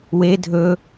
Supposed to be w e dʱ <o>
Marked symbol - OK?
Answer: no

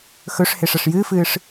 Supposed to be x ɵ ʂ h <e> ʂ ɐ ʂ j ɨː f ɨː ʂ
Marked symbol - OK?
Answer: yes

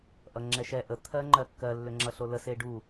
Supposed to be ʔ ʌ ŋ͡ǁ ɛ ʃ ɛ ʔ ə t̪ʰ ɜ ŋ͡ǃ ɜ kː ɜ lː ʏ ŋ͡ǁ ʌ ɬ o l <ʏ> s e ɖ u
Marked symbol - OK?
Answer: no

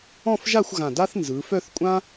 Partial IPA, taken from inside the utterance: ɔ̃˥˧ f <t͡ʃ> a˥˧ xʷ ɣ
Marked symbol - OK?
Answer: no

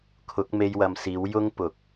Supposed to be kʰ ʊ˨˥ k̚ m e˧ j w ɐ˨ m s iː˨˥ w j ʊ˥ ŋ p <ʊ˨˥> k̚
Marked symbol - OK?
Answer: no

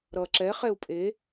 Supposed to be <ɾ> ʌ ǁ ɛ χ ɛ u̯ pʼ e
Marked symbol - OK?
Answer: yes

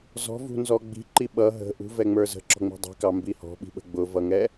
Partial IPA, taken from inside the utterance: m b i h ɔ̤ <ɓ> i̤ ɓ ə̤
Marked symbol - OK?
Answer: yes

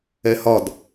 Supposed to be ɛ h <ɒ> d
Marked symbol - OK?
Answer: yes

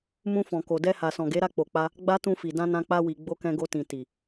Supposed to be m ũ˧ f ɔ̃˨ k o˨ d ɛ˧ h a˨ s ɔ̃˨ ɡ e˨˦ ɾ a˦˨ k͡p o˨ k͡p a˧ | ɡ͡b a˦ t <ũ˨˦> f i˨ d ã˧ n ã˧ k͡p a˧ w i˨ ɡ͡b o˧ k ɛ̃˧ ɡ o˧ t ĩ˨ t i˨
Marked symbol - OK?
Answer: no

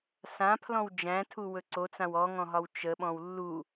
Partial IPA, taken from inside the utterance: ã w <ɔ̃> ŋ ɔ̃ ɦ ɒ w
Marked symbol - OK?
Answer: no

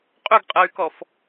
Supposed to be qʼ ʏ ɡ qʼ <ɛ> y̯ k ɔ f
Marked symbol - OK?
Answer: yes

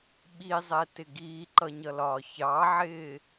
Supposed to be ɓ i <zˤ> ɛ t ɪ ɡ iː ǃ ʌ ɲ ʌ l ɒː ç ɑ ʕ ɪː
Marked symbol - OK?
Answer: yes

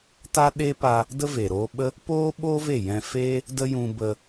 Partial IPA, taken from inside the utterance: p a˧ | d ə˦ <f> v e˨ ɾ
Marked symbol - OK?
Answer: no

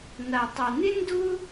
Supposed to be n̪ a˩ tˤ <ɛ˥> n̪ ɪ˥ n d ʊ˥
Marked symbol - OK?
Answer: no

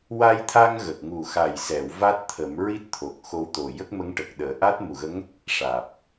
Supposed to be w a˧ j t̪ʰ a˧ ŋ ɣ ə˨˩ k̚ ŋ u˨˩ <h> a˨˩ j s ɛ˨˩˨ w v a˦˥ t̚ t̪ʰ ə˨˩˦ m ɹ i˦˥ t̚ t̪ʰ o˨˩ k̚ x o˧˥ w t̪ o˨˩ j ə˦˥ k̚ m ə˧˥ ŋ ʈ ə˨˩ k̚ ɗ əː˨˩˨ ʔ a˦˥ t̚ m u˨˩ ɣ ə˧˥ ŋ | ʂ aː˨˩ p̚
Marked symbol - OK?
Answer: no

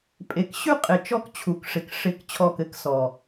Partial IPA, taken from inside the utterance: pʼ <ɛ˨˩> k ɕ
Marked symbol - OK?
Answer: no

